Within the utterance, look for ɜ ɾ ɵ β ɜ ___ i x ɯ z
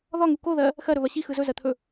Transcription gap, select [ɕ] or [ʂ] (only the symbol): ɕ